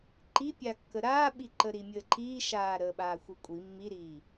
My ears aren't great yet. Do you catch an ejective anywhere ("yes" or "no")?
yes